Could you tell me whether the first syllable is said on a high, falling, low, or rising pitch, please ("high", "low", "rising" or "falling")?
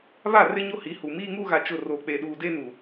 falling